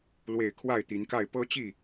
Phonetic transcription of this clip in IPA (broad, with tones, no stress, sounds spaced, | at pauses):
l w e˥˨ ɪ̯ kʰ w a˥˨ ɪ̯ t̪ i˨˦ n k a˥˨ ɪ̯ p ɤ˦ t͡ɕ i˥˨